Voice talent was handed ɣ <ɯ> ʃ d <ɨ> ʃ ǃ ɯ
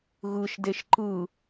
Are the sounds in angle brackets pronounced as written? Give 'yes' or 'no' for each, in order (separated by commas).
yes, no